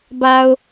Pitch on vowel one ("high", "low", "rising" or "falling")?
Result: low